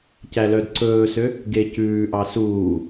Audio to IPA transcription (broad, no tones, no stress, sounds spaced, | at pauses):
c æ l œ d ǀ ɵː s ø | ɡ e c ʉː ʔ ɑ s uː